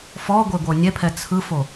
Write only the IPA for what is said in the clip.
f ɔ ɡʷ e ɡʷ ɤ nʲ ɛ pʰ ɛ t͡sʰ ɯ f o

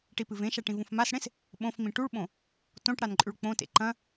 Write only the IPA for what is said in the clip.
ʈ i p ɨ v ẽ ʃ a ʈ ĩ v ũ f m a s ɽ ẽ s | ɓ õ f m ĩ ʈ u ɭ ɓ õ | t õ ʈ ɽ a n ǃʼ ʉ ɭ k͡p õ t ḛ ǃ ɐ̃

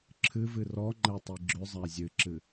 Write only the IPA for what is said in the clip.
ǁʰ ɨ v ɨ r ɔ ŋ͡ǃ ɛ tˤ i ɡ͡ǁ ʏ zˤ æ zʲ ɨ ǁ ɨ

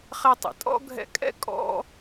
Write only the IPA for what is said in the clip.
χ ɛ˦ tˤ ḭ˩ tʼ ɔ̰˥ ɡʱ ɛ̰˦ kʼ ɛ̰˥ kʼ ɔ̰˦

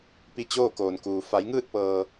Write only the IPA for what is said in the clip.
p i˧ t͡ɕ oː˥˨ k oː˩ n k uː˩ f a˩˧ j ŋ ɯː˥˨ t̚ p ɤː˩

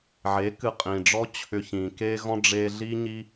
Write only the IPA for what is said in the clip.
ʕ e˨˦ k ɨ˧ qʼ ĩ˨ ɖ͡ʐ ɔ˦ t͡ɕʰ ʏ˧ ç ĩ˨ k e˧ ɣ ɔ̃˧ ɖ͡ʐ e˧ ɮ i˦ ɲ i˦

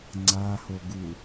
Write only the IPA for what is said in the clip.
ŋ͡ǀ a h o ɡ u

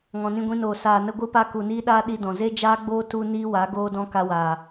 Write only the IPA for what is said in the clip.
ŋ ɔ̃˨ n ĩ˧ ɡʷ ĩ˧ n oː˨ s aː˨ n ə˧ ɡʷ ɨ˧ p a˧ k u˨ n iː˧ ɗ aː˧ ɗ i˧ d ɔ̃˨ z e˦ d͡ʒ aː˦ ɡ͡b oː˦ t u˦ n iː˦ w a˨˦ ɡ oː˦ d ɔ̃˦ k a˧ w aː˨

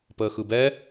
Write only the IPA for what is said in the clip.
p əː x ɯ b ɛ

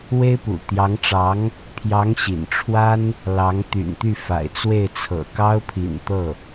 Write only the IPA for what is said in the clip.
w e˥ ɪ̯ p ṵ˨˩ t̪ j ɑ˧˥ ŋ ʈ͡ʂ ɑ˧˥ ŋ | pʰ j ɑ˧˥ ŋ ɕ ḭ˨˩ n ʈ͡ʂʰ w a˥ n | l ɑ˧˥ ŋ t̪ y̰˨˩ n t̪ y˥˩ f a̰˨˩ ɪ̯ t͡s w e˥˩ ɪ̯ t͡sʰ ɤ̰˨˩ k ɑ˥ ʊ̯ pʰ ḭ˨˩ n t̪ ɤ˥˩

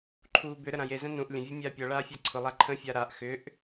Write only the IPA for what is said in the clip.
ǃʰ uː b ʏ ɾ ə ɾ ã j e z ɛ̃ n ũ ʔ lʲ ə̃ vʲ u mʲ aː pʲ ɔ ɭ aː fʲ a ǀʰ ʊ lˠ a ǃʰ ə̃ fʲ a ɾ a ʔ x ʏ ʔ

